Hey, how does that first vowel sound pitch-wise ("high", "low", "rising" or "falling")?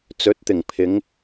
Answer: rising